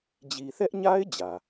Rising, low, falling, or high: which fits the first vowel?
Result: low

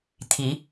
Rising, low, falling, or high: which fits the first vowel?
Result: rising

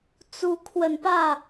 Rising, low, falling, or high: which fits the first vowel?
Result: rising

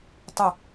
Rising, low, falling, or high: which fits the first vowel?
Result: falling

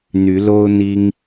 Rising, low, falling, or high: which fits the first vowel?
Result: rising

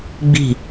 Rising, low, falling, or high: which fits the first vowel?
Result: falling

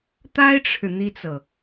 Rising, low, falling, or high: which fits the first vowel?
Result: high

